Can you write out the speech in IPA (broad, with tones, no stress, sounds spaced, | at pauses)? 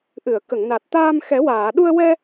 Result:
ʔ ɨ˨˩˨ ə̯ k ə˨˩˨ ŋ n a˨˩ t̚ t̪ aː˧ m x ɛ˨˩˦ w aː˨˩˨ ɗ u˧ ə̯ w ɛ˧